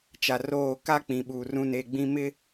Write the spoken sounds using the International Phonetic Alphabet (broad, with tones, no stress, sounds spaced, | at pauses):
t͡ʃ a˨ r oː˦˨ k a˦ k͡p ĩ˨ ɓ uː˨ r ũ˦˨ n e˦˨ ɡ͡b ĩ˦ m ɪ˦